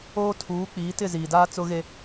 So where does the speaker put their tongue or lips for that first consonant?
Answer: tongue tip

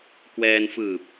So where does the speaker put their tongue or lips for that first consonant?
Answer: velum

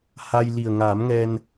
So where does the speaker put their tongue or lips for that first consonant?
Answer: throat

